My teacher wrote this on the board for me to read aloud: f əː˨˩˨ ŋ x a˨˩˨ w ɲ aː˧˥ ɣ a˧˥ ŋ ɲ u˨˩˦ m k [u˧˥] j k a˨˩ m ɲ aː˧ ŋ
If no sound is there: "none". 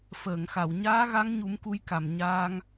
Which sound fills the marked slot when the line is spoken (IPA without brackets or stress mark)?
u˧˥